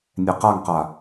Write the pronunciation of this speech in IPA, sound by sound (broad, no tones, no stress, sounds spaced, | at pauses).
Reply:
nʲ ɛ q a ŋ q a